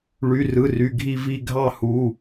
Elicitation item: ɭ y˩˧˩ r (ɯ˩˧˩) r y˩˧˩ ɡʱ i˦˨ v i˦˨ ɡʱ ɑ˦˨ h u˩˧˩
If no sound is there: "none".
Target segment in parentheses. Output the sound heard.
ɯ˩˧˩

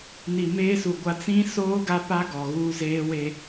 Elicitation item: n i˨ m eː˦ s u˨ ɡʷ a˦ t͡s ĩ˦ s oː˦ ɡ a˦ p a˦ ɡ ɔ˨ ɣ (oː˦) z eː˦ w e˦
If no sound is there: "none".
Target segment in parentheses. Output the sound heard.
uː˦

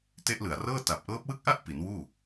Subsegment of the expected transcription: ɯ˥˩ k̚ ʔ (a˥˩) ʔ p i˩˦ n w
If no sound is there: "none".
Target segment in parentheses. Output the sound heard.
a˥˩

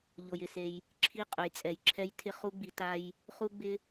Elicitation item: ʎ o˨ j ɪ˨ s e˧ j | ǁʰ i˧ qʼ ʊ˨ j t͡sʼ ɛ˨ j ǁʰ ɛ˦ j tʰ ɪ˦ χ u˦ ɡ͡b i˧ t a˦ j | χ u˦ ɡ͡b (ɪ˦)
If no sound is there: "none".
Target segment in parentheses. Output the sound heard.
ɪ˦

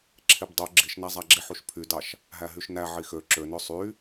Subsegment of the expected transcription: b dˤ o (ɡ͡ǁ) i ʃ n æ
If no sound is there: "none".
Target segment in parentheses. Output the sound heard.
ɡ͡ǁ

